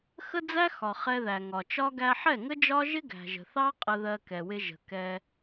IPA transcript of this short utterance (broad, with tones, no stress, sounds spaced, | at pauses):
x ə˦ d͡z æ˦ x ɒ˨ χ ɛ˧ ð æ˨ ŋ ɒ˨ t͡ʃ ɒ˦ ɡ æ˧ ħ ɛ˦˨ ŋ ə˦ d͡ʒ ɒ˦ ʒ ɪ˦ ɡ æ̤˨ ʒ ə̤˨ θ ɑ˦ qʼ ə˧ ð ɜ˧ k ɛ˨ w ɪ˧ ʒ ə̤˨ k ɛ˧